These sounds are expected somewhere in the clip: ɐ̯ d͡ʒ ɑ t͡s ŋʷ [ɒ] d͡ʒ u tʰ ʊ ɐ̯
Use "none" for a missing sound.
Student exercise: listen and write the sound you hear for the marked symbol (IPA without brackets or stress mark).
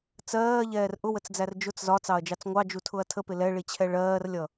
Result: ɑ